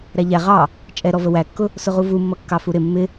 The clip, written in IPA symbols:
ɾ æ ʎ æ ʁ ɑ | t͡ʃʼ ɛ ɾ ɔ v ə w æ kː ʊ | s ʊ ʁ u v u mː ʌ kː ɑ f u ɾ ɪ mː ɪ

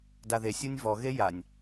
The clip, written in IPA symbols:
d a ð e sʲ u nʲ v ɔ ɣ e j a nʲ

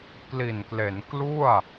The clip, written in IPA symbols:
k l i˨˩ n k l e˩˦ n k l u˥˩ a̯

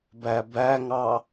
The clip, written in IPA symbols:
b æ b æ ŋ ɑ

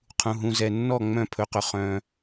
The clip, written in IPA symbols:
qʰ ũ˧ ɦ ũ˧ z ɛ˧ nː ɔ˥˨ ŋ͡m œ̃˥˨ pʰ ɵ˧ q ɵ˧ χ œ̃˧

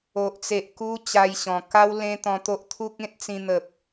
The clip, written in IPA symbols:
o˨ ʔ t͡s e˨ ʔ k u˧ t͡ɕ a˧ j ɕ ɔ̃˨˩ k a˦ w l ẽ˦ t̪ ɔ̃˧ t̪ o˦ ʔ t̪ʰ u˦ k̚ ẽ˦ t̚ t͡s ĩ˧ n̪ ə˨ p̚

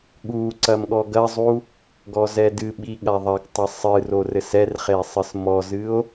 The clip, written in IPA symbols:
ɠ u ǀ ɐ m ɠ ɔ ɡ ɐ zˤ u | ɡ ɔ z ɛ d ɨ ɓ i ɠ a ðˤ ɐ ɡ tˤ ɘ sˤ ɨ r o r ɘ s ɛ r χ e sˤ ɨ s m ɔ z ɨ o̯

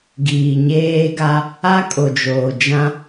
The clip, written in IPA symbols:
ɡ iː˨ ɲ eː˦ ɡ a˦ | a˦ kʼ o˨ d͡ʒ oː˨ d͡ʒ ã˦

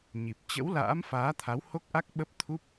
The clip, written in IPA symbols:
ɲ i˨˩ p̚ t͡ɕ ə̰˧˥ w l a̰ː˧˥ m f aː˨˦ t̪ʰ a˨˦ w h o˦˥ k̚ ʔ a˦˥ k̚ ɓ ə˦˥ p̚ t̪ʰ u˦˥ p̚

